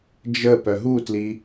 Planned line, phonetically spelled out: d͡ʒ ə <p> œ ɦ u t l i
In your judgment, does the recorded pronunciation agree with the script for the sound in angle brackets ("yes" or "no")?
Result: yes